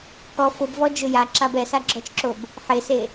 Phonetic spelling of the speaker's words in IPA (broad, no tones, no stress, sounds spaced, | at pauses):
k ɔ f ʊ b v ɔ d͡ʒ ʊ j a ǁ a b ɛ s a ɡ͡ǁ ɔ t͡ʃ ǁ o b | ħ e s e